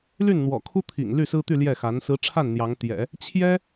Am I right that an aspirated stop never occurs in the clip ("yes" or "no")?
no